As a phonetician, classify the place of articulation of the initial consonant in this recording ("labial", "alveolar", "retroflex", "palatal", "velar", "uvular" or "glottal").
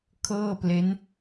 velar